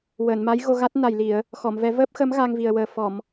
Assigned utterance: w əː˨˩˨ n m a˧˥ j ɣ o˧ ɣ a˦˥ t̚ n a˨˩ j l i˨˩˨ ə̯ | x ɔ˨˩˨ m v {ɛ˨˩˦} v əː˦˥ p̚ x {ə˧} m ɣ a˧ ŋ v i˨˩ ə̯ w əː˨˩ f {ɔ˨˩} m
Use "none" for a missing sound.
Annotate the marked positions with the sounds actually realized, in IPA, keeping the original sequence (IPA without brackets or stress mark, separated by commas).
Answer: ɛ˨˩˦, ə˧˥, ɔ˨˩˨